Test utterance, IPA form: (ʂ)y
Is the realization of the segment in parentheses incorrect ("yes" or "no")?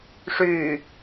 no